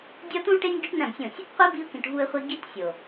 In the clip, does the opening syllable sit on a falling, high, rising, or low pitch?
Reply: high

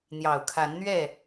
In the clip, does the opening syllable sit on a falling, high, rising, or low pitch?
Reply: low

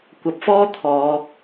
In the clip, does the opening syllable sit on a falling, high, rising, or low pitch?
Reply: rising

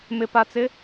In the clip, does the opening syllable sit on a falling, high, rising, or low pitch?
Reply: low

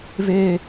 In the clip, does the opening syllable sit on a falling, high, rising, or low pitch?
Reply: high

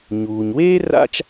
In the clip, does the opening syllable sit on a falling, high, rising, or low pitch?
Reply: low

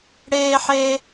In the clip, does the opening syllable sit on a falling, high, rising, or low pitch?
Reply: high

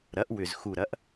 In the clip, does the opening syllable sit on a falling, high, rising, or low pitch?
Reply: rising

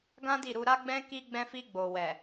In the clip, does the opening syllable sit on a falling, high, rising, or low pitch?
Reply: high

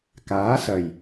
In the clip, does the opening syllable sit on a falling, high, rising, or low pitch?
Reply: rising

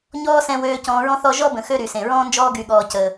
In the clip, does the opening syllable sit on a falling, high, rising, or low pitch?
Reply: high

